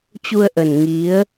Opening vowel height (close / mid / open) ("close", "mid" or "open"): close